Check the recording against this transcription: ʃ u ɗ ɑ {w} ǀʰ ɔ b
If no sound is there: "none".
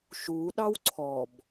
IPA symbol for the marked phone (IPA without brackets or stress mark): w